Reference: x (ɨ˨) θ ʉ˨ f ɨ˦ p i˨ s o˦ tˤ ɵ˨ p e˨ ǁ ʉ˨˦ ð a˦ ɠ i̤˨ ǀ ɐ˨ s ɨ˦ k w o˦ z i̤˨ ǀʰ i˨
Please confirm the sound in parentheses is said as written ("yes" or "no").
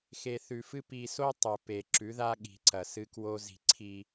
no